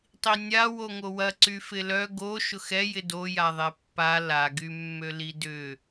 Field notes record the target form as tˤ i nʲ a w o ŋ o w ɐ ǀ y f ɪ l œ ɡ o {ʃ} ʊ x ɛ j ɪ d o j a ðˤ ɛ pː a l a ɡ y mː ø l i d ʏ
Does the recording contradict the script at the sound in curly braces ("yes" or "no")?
no